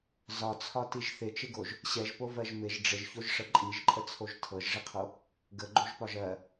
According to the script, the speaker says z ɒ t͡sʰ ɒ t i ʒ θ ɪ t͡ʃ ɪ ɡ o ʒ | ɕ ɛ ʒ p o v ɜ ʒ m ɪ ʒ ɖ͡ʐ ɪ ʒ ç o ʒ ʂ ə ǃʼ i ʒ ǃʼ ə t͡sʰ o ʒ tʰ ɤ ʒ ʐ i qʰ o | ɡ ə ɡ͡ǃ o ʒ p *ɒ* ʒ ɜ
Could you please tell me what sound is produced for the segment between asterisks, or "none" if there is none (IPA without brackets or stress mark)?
ɒ